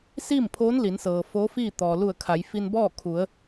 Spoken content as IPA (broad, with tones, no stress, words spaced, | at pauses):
siː˥˨mpʰoː˧˥n li˩˧nsɤː˩foː˧˥fiː˥˨ t̪ɔː˩lu˧˩ə̯ kʰa˩˧j fi˧nbɔː˥˨kʰu˩˧ə̯